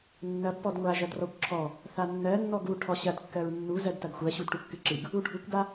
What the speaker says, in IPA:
nːɐb pɔdŋʷa ʒɐdrɔkʷǁʰɔ | θanːɜnːɔɡ u ʈʰɔɕɐdkːɜɹ nːuzɜd tɐɡxʷɜɕud ʈukːɨǁɨɡ | uɖʱukʷba

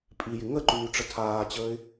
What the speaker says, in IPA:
pʼijɪ ŋəǃyːʈ͡ʂə tʰaːt͡ɕəːɪ̯

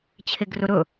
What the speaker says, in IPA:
t͡ɕʰeɡrɵɾɵ

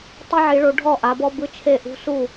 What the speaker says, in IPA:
tˤi˦ʕi˨˦ɭo˨˦ ɖʱɔ˥˩ʔa˨˦bɔ˦ bɯ˥˩t͡ʃʰe˥˩ ʔṳ˦ su˥˩

